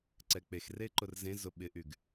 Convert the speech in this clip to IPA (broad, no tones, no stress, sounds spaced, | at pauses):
ǀ ɛ k͡p e x r e ǃ ʊ r z ẽ z ʊ ɓ ɪ ʔ y ɡ